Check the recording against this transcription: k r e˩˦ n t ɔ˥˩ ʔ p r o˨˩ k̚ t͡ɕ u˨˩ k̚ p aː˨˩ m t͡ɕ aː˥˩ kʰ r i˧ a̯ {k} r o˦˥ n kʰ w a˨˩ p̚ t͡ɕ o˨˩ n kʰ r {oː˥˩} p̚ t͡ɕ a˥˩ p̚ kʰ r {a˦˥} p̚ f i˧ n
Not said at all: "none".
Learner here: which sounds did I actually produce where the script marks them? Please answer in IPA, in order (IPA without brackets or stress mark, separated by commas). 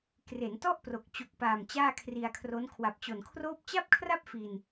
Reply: kʰ, oː˥˩, a˥˩